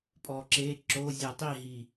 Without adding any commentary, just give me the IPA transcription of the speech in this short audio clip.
pʼɔǁe ǁo zʲʌtˤiɦi

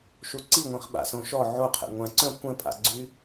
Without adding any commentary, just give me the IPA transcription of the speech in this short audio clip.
ʃuǀiŋʷĩχ ɓa̰sõʃɔ ʕoqʰɛ̰ ŋʷãǀœ̃ kʷɛ̃pʼa̰ɡ͡ǀy

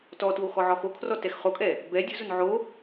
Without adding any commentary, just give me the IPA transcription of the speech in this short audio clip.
tɔtwo xɔʕɔxokʰrɔ tɛxχokʼɛ | bɛ dʲʊzʊn ʕo

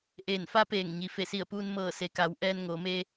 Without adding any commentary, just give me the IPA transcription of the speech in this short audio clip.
ʔeː˧˩nfa˧˥peː˧˩ŋ ɲi˩ fe˧˩si˧˩ə̯puː˧n mɤː˧˩se˩˧ka˩˧w ʔɛː˧nŋoː˩˧meː˧

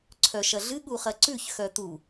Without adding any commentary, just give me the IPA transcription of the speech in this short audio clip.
ǀʰœʃɐɮɨ ɠuχɐǀʉç xœt̪u

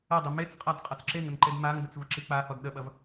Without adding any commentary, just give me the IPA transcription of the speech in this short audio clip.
ɐdˤe met͡sqʼad qʼɐt͡sǁeŋən ǃedmaŋdət͡s vəǁik͡pahɔd ɗəɓɐv

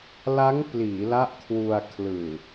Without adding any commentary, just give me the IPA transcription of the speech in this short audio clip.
la˦˥ŋ pliː˩˦la˦˥ʔkʰwu˧a̯ kʰlɯː˨˩

